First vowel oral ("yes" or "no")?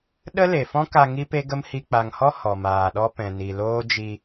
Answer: yes